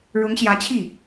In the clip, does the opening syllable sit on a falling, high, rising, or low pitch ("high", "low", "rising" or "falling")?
rising